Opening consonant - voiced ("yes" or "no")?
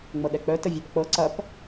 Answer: yes